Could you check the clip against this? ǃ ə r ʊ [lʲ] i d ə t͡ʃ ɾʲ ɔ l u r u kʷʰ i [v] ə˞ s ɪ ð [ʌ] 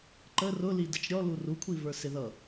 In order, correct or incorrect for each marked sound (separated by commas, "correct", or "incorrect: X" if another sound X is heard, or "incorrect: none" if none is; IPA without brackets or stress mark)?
incorrect: l, correct, correct